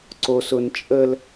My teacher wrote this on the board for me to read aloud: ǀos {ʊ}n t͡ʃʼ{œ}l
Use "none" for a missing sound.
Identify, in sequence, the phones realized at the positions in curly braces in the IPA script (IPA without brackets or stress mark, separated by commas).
ʊ, ə